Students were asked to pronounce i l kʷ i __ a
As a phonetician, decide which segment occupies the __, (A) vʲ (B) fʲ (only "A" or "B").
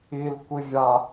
A